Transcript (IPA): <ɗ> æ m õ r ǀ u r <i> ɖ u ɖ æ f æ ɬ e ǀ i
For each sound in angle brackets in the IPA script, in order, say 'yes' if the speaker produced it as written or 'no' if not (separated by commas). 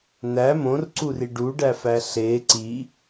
no, yes